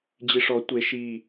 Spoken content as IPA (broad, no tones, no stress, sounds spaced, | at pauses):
d͡ʑ i ʂ ɔ tʷ e ʃ i